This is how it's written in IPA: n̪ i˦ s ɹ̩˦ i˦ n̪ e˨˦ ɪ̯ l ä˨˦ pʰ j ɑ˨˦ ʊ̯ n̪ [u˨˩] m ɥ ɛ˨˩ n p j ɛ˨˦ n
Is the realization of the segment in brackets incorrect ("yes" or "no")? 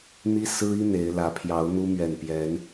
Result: yes